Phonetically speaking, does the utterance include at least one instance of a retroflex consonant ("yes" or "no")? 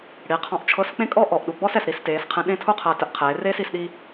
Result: yes